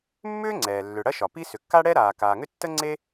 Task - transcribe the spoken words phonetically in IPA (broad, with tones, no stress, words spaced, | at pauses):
mːʏː˥ŋ͡ǀɛː˩ lːʏ˩ ɽɐ˥ʃɒ˩pi˥ sʏ˩kːa˥ɽɛ˥ɾaː˩ kaː˩ŋʏ˥ tːə˥ŋ͡ǀe˥